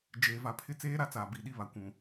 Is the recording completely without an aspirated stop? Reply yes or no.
no